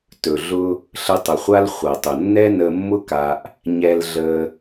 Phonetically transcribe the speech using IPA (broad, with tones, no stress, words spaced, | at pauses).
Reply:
tɵ˨ɮʊ˧ | ɬə˧tˤʊ˨χʷa˦l χʷɐ˨tˤʊ˨nːɛ˦ nə˧mːʊ˦ka˧ʔ | ɲɛ˧lɮə˧